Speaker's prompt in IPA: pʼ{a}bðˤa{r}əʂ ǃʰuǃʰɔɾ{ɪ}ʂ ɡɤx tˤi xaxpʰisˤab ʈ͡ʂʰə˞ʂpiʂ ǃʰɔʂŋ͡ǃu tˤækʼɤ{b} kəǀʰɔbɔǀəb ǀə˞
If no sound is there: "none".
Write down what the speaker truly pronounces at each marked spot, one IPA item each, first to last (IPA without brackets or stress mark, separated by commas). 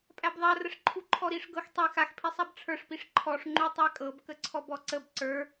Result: æ, r, i, b